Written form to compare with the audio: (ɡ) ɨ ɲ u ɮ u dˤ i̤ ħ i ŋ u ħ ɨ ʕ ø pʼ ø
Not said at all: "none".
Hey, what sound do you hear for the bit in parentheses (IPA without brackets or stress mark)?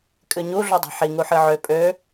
kʼ